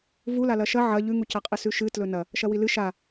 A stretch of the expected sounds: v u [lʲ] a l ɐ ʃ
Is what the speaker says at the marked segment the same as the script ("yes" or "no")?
no